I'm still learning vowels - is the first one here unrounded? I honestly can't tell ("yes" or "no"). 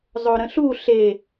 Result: no